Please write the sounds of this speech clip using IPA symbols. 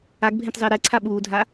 a ɡ bʱ ẽ t zˤ ɪː ɾ ɛ ǀʰ a ɓ uː dʱ a

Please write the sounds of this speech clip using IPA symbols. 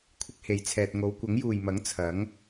kʷʰ ɪ˥ k̚ h e˨˥ j t͡sʰ ɛː˧ t̚ ŋ o˨˧ w kʷ ɐ˨˥ ŋ j uː˨ j m ɐ˨˥ ŋ t͡sʰ ɐ˨˥ ŋ

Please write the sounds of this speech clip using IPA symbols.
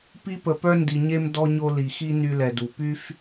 p i˥ p ə˧ p œ˥ n d i˧ ɲ e˥ m d ɔ˥ ɲ o˥ l i˧ x i˥ n y˥ l ɛ˧ d u˧ p y˥ f

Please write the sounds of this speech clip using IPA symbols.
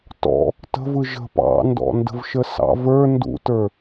t ɔ̰ | t ə̤ v ɯ ʒ ə̤ p ɑ̰ n d ɔ̰ n d ə̤ v ʃ ə s ɑ̰ v ə˞ n d ṵ t ə˞

